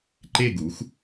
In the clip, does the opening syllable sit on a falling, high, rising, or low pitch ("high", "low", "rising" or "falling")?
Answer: falling